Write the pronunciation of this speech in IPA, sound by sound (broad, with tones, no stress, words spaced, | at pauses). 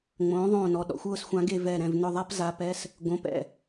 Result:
ŋ͡mõː˩˥ðˤõː˧˩nɔ˩˧˩ɗɔ̰˩˥xʷ ʊː˥˩sxʷã˨˩˦ɡe˧˩ vɛ˧˩ɾɛ̃˧˩v nʊ˧˩ðˤa˦pza˩˥pɛ˩˧˩s | ɡõ˩˧˩p ɛ̰˥˩